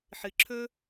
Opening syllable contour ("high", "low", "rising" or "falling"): low